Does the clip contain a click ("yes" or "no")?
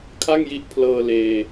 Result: no